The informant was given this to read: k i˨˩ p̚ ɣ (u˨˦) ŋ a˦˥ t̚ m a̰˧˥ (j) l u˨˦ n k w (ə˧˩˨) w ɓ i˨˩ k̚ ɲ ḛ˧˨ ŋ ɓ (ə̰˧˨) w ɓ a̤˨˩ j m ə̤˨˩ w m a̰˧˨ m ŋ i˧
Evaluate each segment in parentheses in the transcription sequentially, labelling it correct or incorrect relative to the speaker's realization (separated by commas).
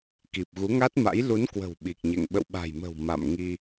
correct, correct, incorrect, correct